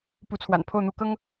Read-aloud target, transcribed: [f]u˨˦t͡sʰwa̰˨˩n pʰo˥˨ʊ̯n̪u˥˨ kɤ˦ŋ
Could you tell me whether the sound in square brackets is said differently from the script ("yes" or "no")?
yes